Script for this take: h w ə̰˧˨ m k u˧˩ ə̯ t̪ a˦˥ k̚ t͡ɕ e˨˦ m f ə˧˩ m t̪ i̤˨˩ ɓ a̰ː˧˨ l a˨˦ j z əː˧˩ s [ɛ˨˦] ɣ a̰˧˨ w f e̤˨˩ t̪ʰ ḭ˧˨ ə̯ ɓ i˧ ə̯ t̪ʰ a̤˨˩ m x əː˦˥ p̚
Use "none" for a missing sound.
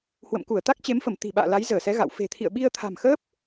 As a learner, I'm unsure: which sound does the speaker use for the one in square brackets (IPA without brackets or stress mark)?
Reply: ɛ˨˦